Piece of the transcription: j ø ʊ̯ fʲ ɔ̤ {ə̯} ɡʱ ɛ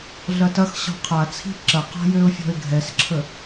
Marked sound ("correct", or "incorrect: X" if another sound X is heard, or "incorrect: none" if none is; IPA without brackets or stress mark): incorrect: ɪ̯